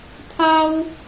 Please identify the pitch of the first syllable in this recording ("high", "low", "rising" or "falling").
high